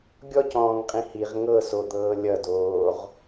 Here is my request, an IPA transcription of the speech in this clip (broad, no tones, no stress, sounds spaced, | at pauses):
ɡʲ ɔ c ɔ̃ː ŋ qʼ ĩ h i ʁ ŋ ɤ s o d̪ ɤː lʲ ʌ d oː ʁ